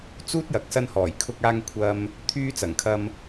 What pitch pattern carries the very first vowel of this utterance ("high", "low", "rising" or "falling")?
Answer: high